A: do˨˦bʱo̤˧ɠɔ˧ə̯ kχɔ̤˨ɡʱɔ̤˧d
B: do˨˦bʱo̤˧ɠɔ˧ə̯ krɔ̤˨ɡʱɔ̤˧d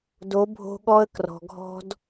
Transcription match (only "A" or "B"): B